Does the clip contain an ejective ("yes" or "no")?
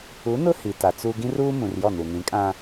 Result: yes